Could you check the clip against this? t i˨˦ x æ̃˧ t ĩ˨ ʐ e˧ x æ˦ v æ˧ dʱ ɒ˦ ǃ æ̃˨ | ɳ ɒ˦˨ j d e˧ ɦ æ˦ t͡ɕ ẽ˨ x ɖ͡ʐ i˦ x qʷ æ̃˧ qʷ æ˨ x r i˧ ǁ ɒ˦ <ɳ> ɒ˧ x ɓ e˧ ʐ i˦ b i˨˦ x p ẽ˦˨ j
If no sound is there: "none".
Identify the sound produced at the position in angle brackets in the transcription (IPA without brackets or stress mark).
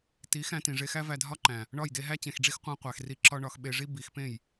ɳ